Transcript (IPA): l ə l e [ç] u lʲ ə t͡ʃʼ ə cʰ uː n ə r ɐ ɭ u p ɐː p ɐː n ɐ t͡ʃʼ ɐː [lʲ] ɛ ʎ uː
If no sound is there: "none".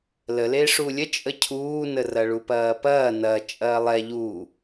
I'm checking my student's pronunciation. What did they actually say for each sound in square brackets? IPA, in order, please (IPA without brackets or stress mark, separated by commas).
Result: ʂ, lˠ